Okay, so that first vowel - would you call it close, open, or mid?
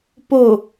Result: mid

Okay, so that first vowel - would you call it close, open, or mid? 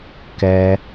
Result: mid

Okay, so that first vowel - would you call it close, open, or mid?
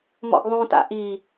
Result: mid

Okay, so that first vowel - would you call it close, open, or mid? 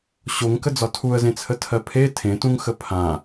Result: mid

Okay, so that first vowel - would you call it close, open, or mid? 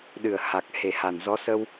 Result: close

